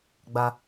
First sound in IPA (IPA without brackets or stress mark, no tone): ɡ͡b